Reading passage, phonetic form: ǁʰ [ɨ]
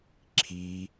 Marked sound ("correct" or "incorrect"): incorrect